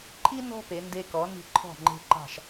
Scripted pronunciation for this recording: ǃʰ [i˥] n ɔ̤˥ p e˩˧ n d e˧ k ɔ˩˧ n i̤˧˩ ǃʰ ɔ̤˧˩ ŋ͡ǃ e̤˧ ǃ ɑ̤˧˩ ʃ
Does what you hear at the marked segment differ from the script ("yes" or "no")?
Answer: no